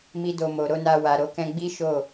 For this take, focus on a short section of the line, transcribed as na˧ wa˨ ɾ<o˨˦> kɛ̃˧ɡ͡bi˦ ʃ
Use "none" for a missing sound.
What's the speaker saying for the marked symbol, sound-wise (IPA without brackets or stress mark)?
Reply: o˨˦